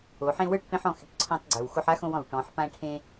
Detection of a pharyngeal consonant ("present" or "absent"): present